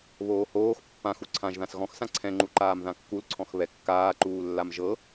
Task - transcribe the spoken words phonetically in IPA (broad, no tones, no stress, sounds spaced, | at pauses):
β oː h oː x pː ã x u ǀʰ ã ʒ ð ã s ɣ ɔ̃ x s ã ǀʰ ɛ̃ ŋ͡ǃ u ǃ aː m ð ã kː u l ǀʰ ɔ̃ x β ɛ kː aː ǃ uː lː a m ʒ ɤ